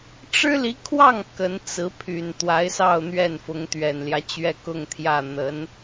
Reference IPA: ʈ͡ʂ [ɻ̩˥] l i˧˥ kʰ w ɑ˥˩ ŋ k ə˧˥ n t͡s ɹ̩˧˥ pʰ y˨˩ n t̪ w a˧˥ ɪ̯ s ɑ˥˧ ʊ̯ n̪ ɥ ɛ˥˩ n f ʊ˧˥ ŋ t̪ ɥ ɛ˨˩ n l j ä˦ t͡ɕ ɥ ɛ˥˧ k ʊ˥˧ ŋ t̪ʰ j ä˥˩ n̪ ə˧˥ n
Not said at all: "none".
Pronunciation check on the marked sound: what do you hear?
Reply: ɻ̩˥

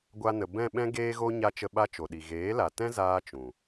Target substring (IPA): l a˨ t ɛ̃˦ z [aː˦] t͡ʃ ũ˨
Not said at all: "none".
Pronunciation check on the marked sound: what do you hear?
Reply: aː˦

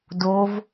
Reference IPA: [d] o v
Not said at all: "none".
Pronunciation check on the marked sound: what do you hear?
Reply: d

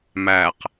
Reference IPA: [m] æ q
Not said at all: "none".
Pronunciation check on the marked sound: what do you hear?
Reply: m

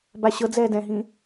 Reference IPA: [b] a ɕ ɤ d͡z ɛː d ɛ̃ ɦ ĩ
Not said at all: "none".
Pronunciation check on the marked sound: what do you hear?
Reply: b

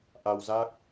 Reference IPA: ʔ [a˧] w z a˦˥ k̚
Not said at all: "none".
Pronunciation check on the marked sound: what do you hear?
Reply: a˧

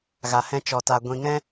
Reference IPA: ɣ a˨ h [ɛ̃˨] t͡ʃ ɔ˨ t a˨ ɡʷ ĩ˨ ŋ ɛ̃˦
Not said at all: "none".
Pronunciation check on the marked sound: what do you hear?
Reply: ɛ̃˧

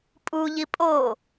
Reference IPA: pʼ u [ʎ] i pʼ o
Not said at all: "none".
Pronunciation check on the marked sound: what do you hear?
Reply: ʎ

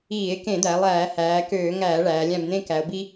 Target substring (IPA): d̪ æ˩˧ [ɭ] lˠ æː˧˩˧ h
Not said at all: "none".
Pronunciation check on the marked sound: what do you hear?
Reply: none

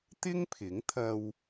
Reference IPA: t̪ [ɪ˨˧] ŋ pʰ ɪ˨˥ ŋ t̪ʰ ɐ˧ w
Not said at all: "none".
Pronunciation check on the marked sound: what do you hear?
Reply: ɪ˥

